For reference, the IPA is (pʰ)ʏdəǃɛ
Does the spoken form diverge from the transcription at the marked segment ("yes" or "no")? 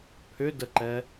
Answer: no